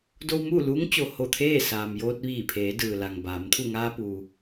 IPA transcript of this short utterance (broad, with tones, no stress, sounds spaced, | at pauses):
d o˧ w m uː˥˨ l uː˧˥ ŋ t͡ɕ o˩ h o˧˩ t̪ʰ eː˥˨ s aː˩ m j oː˧ t̚ ʋ iː˧˩ pʰ eː˩˧ d ɯː˩ l a˩ ŋ b aː˩˧ m t̪ʰ u˧˩ ŋ aː˧ p uː˩